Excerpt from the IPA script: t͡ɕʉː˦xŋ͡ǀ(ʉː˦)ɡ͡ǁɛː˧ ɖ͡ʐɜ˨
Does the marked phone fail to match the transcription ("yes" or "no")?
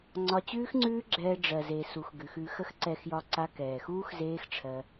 no